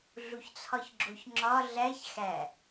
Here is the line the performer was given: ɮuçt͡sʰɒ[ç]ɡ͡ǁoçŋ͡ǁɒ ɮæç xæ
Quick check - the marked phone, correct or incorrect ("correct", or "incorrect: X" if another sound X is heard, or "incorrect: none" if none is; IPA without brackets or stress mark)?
correct